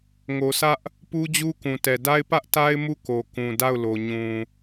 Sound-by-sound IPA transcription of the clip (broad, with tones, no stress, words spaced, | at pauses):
ŋo˨sʰä˦ʔ | pu˦d͡ʑu˦ kũ˨ tɛ˨da˦ɪ̯ pä˦ʔta˦ɪ̯ mu˦˨ko˨kũ˨ da˦˨ʊ̯lo˨ɲũ˨